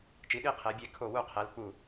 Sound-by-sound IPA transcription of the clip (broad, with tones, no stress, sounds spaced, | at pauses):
t͡ʃ i˨˦ ɗ i˦˨ qʰ e˨˦ bʲ e˦˨ kʰ o˦˨ w u˦˨ qʰ e˨˦ l k͡p u˦˨